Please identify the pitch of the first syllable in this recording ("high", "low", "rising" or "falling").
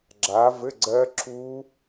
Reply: rising